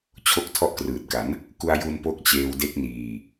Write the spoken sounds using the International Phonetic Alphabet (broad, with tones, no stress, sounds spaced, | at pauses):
t͡ɕʰ o˦˥ k̚ tʰ ɔ˦˥ ʔ k r ɯː˨˩ t̚ k a˩˦ n | k u˧ a̯ j u˧ n p o˦˥ k̚ t͡ɕ eː˧ w d e˦˥ k̚ n iː˧